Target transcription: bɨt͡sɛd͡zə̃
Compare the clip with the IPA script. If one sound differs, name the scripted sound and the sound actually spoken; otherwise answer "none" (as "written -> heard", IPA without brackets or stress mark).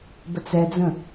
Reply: ɨ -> ə